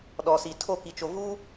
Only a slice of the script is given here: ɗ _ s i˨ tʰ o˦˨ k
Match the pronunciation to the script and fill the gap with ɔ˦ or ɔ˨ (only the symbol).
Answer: ɔ˨